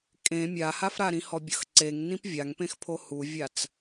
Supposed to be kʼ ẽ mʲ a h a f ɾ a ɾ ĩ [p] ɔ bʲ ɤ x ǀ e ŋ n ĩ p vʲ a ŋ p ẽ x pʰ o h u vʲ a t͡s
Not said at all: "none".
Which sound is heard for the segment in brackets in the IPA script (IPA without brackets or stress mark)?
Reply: h